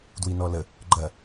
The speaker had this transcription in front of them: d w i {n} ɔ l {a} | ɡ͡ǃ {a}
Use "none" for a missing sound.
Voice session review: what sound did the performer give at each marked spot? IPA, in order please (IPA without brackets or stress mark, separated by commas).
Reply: n, ə, ɐ